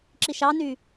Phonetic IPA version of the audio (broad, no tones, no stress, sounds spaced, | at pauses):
ǁ i ʃ ɑ n y